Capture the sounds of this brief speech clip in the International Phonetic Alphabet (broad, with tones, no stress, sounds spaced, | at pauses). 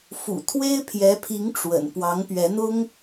f ṵ˨˩ t̪ʰ w e˥ ɪ̯ pʰ j ɛ˧˥ pʰ i˧˥ ŋ ʈ͡ʂ w ə̰˨˩ n p w ɑ˧˥ ŋ p ɥ ɛ˧˥ n̪ ʊ˥ ŋ